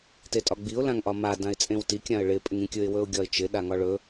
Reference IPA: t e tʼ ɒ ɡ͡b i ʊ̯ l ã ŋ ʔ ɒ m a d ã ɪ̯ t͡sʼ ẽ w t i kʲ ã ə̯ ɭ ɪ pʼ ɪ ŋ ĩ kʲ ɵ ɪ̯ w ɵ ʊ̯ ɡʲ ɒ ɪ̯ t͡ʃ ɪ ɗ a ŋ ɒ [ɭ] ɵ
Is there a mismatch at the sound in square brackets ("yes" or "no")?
no